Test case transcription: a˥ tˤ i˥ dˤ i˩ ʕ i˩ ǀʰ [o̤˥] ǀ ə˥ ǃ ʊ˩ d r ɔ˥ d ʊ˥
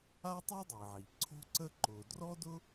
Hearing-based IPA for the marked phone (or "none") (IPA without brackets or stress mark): o̤˥